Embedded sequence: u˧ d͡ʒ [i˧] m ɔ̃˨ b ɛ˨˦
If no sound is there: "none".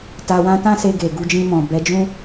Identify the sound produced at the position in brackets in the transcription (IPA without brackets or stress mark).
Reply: ĩ˧